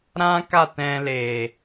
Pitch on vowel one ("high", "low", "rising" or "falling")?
high